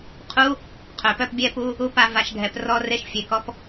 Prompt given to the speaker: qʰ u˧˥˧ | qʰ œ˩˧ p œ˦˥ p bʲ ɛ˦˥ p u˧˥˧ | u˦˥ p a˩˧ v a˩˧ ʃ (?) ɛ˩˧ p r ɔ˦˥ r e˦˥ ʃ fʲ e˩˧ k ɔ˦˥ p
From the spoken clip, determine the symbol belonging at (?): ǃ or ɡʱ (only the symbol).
ɡʱ